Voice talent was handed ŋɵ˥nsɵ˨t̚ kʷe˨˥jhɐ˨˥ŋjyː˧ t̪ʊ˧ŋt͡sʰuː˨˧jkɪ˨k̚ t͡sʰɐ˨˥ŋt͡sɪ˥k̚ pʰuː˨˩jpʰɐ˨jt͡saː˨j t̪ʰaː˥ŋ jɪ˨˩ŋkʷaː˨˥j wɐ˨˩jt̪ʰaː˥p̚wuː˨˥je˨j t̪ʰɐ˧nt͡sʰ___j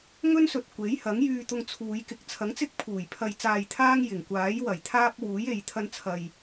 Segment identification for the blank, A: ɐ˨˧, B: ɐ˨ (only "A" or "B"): B